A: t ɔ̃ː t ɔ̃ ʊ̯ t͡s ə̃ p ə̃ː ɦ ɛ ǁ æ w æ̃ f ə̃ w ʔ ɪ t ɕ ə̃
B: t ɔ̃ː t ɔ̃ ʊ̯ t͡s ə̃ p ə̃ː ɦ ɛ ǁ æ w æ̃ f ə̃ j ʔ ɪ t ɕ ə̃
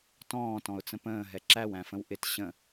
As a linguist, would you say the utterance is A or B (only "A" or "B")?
A